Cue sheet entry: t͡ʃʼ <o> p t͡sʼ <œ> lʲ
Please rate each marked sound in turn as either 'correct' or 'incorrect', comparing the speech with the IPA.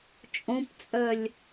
incorrect, correct

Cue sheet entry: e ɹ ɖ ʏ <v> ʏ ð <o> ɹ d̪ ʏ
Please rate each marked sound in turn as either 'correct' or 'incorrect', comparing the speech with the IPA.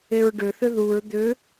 incorrect, incorrect

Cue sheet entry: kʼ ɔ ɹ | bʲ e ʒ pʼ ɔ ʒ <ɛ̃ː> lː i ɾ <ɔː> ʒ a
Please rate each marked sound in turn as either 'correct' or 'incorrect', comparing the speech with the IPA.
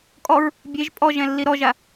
incorrect, incorrect

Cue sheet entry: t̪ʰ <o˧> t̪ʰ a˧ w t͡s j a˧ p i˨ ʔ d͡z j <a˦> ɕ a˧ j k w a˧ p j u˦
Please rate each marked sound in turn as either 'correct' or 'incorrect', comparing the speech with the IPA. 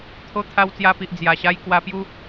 correct, incorrect

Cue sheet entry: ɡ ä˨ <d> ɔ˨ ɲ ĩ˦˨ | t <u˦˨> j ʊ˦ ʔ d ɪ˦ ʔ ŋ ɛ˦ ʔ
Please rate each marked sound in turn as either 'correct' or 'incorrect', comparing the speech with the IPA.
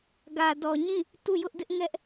correct, correct

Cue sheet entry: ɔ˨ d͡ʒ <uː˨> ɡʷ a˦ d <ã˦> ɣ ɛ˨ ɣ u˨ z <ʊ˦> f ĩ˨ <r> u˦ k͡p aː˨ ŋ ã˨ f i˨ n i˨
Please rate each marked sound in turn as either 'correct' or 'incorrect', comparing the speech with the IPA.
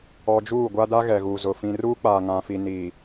incorrect, incorrect, incorrect, correct

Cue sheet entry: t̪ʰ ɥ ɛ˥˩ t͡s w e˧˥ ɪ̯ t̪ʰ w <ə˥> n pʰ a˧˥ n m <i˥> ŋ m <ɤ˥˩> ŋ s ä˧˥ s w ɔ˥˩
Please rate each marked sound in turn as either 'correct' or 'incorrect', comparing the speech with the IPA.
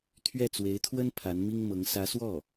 correct, correct, incorrect

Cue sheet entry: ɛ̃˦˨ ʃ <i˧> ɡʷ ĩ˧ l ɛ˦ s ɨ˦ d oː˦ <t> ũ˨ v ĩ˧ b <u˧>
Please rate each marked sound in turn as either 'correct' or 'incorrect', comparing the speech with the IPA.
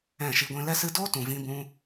correct, correct, incorrect

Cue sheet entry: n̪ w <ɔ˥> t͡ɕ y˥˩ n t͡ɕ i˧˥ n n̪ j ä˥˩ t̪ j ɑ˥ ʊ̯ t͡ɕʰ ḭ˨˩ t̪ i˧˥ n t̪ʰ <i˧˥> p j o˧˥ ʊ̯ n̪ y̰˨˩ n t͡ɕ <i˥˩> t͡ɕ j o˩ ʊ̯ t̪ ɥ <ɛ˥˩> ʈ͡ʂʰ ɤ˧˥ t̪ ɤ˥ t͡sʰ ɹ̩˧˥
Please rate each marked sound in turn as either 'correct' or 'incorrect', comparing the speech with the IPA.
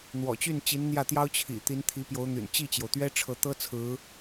incorrect, correct, correct, incorrect

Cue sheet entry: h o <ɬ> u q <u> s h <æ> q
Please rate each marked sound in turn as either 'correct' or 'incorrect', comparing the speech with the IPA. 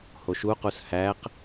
incorrect, correct, correct

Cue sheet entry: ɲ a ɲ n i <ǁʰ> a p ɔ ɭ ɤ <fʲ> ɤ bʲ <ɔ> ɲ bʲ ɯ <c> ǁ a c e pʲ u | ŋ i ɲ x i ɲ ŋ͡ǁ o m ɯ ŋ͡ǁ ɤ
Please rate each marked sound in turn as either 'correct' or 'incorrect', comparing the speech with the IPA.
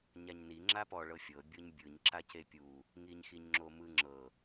incorrect, correct, incorrect, incorrect

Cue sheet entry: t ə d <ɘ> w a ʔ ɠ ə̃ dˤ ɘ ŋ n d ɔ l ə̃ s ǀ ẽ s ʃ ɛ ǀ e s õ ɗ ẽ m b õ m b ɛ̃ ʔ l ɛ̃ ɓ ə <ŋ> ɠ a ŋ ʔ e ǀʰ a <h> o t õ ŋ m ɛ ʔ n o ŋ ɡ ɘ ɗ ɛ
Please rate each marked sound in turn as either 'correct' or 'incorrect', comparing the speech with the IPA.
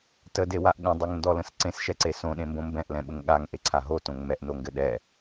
incorrect, correct, incorrect

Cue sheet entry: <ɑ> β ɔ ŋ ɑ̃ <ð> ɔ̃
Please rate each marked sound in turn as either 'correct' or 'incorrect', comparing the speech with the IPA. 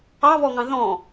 correct, correct

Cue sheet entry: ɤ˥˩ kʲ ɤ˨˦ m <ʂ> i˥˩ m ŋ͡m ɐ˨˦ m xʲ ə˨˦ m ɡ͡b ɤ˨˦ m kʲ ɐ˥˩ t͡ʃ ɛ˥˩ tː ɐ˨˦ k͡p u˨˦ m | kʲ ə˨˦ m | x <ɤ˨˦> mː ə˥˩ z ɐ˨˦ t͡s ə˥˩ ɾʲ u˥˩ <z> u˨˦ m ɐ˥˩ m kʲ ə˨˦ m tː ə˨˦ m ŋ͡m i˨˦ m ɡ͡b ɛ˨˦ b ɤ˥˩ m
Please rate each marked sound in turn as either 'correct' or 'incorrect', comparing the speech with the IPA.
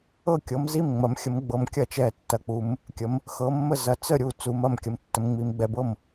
incorrect, correct, incorrect

